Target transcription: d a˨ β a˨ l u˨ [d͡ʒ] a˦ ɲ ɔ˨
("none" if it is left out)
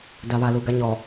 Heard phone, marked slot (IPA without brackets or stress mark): ɡ